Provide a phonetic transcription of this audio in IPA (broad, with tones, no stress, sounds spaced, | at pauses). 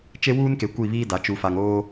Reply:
t͡ʃ e˦ w uː˦ n k e˨ kʷ i˦˨ β iː˦ d a˨ t͡ʃ u˨ f a˨ ŋ oː˦